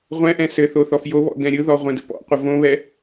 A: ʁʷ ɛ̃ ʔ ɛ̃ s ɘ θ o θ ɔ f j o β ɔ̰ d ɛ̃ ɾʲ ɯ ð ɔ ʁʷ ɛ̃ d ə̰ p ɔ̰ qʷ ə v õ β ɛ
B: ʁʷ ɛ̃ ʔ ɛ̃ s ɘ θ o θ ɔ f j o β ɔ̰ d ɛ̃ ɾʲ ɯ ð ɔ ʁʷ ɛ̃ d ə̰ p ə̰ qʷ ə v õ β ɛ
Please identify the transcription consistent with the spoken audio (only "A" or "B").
A